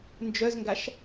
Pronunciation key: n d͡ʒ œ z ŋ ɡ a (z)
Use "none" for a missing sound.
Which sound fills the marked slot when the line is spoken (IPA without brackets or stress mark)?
ʃ